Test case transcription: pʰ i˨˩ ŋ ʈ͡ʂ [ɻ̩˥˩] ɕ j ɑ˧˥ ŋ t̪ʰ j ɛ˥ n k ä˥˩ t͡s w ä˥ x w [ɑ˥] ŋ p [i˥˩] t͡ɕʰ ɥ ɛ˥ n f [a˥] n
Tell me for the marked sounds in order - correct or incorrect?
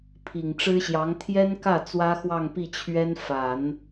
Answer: incorrect, incorrect, correct, incorrect

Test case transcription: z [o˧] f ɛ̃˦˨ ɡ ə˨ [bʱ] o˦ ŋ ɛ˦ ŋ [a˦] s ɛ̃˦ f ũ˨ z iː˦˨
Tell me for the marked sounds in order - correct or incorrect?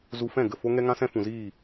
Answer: incorrect, incorrect, incorrect

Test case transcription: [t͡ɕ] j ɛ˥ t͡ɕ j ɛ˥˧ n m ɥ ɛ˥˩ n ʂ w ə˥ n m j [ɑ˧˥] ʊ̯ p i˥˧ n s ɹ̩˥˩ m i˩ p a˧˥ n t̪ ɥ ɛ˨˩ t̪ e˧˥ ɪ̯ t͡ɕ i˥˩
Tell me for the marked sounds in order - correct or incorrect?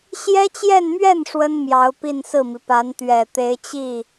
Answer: incorrect, correct

